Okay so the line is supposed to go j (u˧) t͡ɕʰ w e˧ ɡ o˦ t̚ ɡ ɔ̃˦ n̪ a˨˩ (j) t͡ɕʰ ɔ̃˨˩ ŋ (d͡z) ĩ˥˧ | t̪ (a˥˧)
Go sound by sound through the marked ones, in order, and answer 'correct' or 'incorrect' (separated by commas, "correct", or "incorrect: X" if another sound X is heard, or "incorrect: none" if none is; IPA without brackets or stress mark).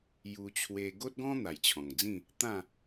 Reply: correct, correct, correct, incorrect: ã˥˧